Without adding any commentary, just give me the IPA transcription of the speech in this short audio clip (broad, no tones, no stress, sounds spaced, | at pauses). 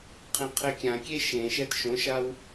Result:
qʰ ĩ qʰ e kʲ ã kʲ e ʃ ẽ ʃ ɛ d ʃ õ ʃ a w